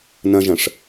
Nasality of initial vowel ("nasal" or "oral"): nasal